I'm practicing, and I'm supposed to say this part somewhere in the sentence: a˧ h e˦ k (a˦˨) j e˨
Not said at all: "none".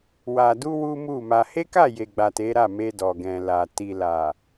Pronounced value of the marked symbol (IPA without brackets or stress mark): a˦˨